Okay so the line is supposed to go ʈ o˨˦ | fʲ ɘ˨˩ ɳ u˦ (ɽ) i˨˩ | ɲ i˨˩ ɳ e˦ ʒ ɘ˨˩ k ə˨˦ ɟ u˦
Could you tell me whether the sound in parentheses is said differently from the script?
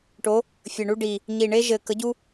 yes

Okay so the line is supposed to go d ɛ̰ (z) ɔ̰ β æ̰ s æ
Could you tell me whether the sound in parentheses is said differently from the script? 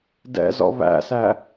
no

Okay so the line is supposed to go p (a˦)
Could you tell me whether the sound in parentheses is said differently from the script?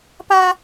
no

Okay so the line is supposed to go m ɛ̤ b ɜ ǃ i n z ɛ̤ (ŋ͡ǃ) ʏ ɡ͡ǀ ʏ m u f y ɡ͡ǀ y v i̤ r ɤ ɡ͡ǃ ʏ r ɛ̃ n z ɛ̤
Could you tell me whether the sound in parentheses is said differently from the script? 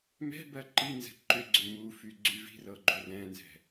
yes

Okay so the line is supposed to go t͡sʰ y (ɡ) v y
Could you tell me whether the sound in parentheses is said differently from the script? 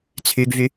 no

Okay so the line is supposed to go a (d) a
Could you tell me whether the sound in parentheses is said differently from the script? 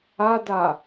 no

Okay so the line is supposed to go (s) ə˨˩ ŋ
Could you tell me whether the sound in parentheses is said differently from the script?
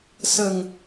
no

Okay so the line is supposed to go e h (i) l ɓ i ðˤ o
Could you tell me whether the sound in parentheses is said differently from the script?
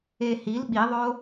no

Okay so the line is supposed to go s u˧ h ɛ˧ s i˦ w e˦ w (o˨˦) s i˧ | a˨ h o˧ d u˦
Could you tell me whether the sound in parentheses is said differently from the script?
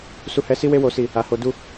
yes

